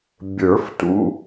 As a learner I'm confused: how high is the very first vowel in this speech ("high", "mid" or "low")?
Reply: mid